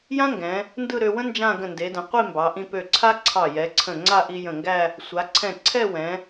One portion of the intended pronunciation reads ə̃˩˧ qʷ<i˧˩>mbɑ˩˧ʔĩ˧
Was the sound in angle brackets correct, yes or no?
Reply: no